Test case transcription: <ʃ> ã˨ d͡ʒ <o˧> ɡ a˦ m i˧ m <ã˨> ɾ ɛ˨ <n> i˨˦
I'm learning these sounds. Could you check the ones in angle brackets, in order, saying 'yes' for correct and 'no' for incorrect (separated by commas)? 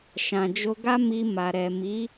yes, yes, no, no